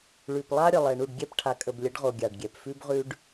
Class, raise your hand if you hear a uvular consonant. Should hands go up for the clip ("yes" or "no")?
yes